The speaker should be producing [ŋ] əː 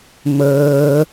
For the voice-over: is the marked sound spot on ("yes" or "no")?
no